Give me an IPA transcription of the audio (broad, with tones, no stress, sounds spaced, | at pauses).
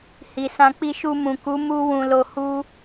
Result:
h i˨ s ã˧ k͡p i˧ ʃ u˧ m ũ˨ k u˨˦ m u˦ w ũ˧ l o˧ h u˧